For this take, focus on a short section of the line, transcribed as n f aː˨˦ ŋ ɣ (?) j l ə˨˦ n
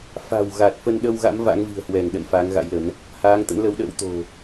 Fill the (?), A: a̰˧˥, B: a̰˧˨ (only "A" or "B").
A